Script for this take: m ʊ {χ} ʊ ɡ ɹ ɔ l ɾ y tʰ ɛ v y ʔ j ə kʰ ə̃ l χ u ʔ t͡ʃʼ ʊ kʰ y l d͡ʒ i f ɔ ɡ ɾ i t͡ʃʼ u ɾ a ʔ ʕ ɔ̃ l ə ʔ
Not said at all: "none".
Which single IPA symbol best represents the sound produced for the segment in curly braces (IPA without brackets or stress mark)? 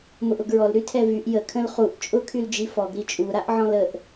ʔ